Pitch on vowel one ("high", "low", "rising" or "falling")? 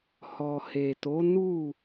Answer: low